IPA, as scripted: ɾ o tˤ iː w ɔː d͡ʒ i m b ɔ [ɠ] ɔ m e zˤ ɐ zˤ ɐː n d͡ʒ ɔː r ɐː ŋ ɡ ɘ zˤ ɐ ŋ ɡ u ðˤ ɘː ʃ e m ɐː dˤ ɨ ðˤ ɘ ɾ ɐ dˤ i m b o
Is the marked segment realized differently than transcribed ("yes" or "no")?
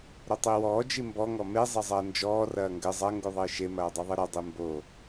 yes